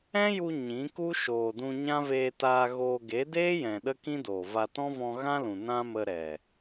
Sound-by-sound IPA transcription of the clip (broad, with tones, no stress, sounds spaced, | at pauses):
ɛ̃˦ j u˧ ɲ ĩ˨˦ k u˦ ʃ oː˨ d ũ˧ ɲ ã˦ v eː˧ t aː˧ ɣ oː˧ ɡ e˨˦ d eː˦ j ɛ̃˨ ɗ ə˦ k ĩ˦ d oː˨ v a˧ t ɔ̃˦ v ɔ̃˧ ɣ ã˦ l ũ˨ n ã˦ m ə˧ ɾ ɛ˨